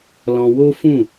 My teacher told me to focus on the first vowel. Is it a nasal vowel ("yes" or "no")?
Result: yes